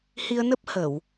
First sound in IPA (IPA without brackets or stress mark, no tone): h